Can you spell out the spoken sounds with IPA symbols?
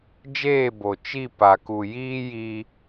d͡ʒ eː˦˨ b o˨ t͡ʃ i˦˨ p a˨ k u˨ j iː˦ j iː˦

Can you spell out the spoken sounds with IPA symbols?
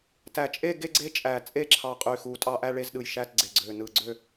t æ˧˩ t͡ʃʼ e˥˧ ɡ e˥˧ ɡ͡ǀ e˥˧ t͡ʃʼ æ˧˩ t͡sʼ e˥˧ ǁʰ ɑ˧˩ qʼ y˧˩ x u˧˩ tʼ ɑ˥˧ ʔ æ˥˧ ɭ e˥˧ z ɗ ɯ˧˩ j ʃ æ˥˧ t ɡ͡ǀ e˧˩ ɡ͡ǀ ø˧˩ n ɯ˧˩ ɡ͡ǀ ø˥˧

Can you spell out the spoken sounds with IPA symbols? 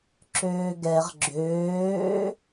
ǁ øː ɡ ɛ ʁ ɡ͡ǁ øː

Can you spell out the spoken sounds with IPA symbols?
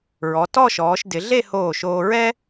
ɹ ɔ˩˧ t ɔ˥˧ ʃ ɔː˩˧ ʃ d ɪ˩˧ ɮ e˥˧ h oː˧˩ ʃ oː˧ ɹ ɛ˥

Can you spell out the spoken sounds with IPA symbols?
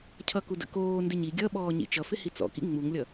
cʰ ʌ k u d ə̰ k oː n d ɪ ɲ i ɡʲ ʌ ɓ ɔː ɲ ḭ t͡ʃ ʌ f ɪ h i t͡s ɔ̰ k ḭ ŋ͡m u ŋ lʲ ʌ

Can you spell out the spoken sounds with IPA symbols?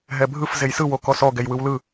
ɦ ɛ bʱ ɯ f z e j s ɯ w o k ɔ s ɔ ɡ ɛ j w ɯ w l ɯ

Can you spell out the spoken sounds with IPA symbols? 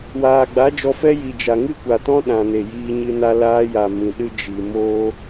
w aː˨ ɡ͡b a˨˦ d͡ʒ ɔ˧ f ɛ˦ j i˨ d͡ʒ a˨ ŋ ɨ˦ kʷ a˨ t ɔ̃˦ ɗ ã˨ n e˨ j iː˧ ɲ ɨ˧ n a˧ l aː˧ j a˨ m ĩ˨ ɗ ɨ˦ d͡ʒ i˨ m oː˦

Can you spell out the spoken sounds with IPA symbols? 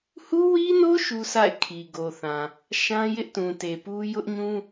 h u˦ w i˦ n o˦ ʃ u˦ sʰ a̰˦˨ ɪ̯ kʰ i˨ ɡ o˨ θ ã˨ | ʃ ã˦ j ɪ˦ ʔ t ũ˨ t e˨ p u˦ j ʊ˦ ʔ ɲ ũ˦

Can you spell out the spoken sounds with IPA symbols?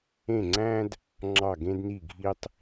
ẽ˧˩ ŋ͡ǀ æ̃˧ d | ŋ͡ǁ ɑ˧˩ ɡ ẽ˧ d n i˧˩ ɡʱ i˧ tˤ

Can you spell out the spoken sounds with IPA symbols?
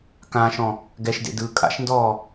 k ã ʃ ɔ̃ | ɡ ɛ ʃ d ḛ d ɯː kʼ a̰ ʃ n d ɔː

